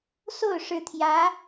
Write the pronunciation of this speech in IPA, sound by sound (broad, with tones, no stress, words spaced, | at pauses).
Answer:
so˥˩ʊ̯ʂɻ̩˧˥t̪ʰjä˧˥